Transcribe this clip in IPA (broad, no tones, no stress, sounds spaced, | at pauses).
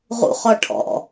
ʁ ṵ χ ɔ ʈʰ ɔ̰